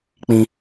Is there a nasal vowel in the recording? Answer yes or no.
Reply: yes